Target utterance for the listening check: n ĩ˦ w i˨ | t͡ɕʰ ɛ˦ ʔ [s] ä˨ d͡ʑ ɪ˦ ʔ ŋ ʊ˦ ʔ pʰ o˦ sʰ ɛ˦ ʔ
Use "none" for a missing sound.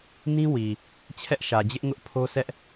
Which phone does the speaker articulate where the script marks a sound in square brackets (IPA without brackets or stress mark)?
ʃ